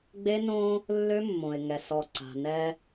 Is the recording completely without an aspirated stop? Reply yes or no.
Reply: yes